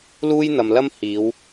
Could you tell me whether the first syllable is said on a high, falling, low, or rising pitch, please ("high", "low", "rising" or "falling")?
high